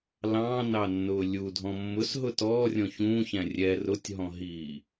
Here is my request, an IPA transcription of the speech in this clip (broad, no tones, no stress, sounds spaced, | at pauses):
l ɑ̃ n ɑ nː ʊː lʲ u dʱ ɔ̃ mː ʊ s ɦ ʊ t ɔː rʲ ɔ̃ ç ũ ç æ̃ rʲ ɛ r ʊ tʲ ɦ ɔ̃ ɦ iː